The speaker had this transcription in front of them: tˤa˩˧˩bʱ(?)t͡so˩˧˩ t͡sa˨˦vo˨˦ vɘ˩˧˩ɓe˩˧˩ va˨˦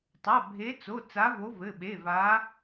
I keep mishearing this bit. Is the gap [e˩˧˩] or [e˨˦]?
e˨˦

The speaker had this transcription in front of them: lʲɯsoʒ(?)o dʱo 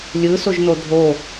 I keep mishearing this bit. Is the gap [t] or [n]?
n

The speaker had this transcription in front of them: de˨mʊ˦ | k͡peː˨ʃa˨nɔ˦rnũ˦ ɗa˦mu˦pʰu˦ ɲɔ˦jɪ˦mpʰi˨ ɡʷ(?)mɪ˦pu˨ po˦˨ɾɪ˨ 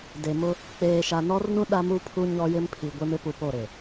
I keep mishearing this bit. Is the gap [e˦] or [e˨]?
e˦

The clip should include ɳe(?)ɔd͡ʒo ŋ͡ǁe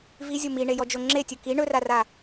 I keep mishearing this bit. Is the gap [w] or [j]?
j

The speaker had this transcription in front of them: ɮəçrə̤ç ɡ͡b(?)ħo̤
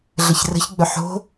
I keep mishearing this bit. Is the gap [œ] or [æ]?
œ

